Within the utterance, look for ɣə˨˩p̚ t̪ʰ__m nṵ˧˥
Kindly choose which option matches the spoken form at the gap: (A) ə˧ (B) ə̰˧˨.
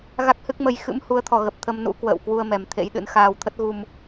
A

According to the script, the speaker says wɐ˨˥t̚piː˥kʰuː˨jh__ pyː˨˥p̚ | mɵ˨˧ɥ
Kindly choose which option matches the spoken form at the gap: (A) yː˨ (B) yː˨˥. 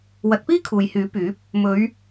B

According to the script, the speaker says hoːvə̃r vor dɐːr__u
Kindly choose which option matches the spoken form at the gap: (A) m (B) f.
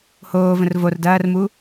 A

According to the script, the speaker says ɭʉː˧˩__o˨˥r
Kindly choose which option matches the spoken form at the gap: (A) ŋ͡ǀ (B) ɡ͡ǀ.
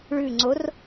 A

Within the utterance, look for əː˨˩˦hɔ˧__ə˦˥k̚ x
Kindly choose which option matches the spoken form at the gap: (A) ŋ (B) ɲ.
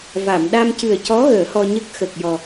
B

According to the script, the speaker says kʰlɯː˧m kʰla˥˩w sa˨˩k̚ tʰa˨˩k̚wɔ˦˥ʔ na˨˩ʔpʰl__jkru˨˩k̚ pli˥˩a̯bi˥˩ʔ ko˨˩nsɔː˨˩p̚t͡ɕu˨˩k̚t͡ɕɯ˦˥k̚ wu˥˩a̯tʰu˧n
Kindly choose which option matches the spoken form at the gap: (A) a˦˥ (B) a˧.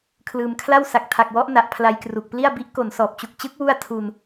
B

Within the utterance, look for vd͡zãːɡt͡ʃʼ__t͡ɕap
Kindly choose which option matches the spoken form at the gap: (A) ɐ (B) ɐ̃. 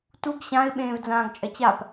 A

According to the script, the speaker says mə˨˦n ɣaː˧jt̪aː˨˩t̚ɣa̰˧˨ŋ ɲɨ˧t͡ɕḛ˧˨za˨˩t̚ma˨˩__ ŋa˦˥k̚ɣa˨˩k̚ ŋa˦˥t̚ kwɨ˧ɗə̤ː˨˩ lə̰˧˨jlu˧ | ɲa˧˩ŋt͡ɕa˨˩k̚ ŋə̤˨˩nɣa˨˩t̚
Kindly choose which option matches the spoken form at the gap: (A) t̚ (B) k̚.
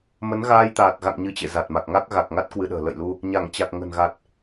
B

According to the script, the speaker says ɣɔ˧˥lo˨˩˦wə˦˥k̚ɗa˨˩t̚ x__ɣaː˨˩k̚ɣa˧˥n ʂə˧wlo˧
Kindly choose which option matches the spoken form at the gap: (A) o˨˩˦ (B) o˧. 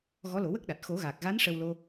A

